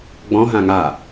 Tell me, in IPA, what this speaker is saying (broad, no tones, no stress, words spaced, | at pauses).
ɡ͡bɔ̃ɦã ŋa